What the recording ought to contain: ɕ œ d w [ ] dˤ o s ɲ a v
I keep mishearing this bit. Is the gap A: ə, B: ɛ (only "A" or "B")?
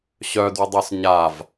A